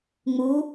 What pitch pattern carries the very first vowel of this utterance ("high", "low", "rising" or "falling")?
rising